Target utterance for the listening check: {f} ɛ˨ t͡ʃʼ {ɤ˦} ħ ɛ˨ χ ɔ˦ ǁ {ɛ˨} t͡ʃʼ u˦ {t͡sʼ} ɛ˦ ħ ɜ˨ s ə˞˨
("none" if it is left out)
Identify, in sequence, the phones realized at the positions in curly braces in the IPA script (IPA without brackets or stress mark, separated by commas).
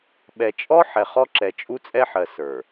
ɓ, ɔ˦, ɛ˨, t͡sʼ